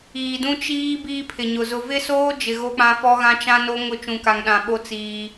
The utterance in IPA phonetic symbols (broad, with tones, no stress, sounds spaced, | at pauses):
iː˨ d ũ˦ t͡ʃ iː˦ b iː˦ pʰ ɪ˨ ɲ ʊ˨ z ʊ˨ v ɪ˦ s oː˦ d͡ʒ ɪ˨ ɣ o˦ k͡p ã˦ f ɔ˦ ɣ ã˦ t͡ʃ ã˦ n o˦ ŋ ʊ˦˨ t͡ʃ ũ˨ k a˨ ŋ ɗ ã˨ ɓ o˦ t͡s iː˦